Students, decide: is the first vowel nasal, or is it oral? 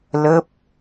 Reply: oral